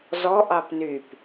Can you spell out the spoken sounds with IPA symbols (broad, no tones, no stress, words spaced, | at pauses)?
zɔ ʔɑpnyp